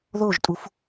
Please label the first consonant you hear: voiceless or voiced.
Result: voiced